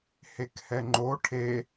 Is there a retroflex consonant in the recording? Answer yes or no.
yes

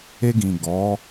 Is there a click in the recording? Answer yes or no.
no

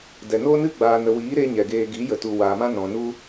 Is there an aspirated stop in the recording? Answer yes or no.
no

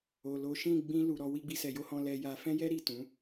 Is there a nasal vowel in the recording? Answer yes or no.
yes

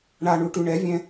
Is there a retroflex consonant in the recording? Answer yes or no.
yes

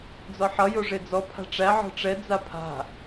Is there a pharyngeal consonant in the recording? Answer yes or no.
yes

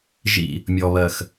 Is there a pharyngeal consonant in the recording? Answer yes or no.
no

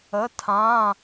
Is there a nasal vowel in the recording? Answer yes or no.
yes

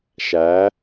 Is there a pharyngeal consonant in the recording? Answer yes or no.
no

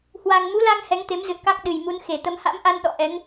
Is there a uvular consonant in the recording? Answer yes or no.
no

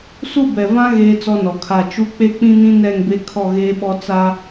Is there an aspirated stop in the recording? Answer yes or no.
yes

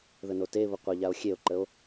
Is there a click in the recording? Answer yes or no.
yes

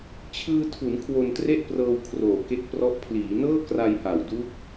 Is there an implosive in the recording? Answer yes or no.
no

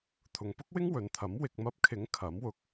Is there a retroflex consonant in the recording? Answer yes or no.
no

